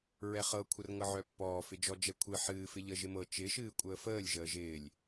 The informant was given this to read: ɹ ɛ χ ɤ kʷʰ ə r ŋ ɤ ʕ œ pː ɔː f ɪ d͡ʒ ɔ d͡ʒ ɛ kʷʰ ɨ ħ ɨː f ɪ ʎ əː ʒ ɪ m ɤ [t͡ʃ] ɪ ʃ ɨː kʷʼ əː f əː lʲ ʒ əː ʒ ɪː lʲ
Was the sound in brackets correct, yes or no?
yes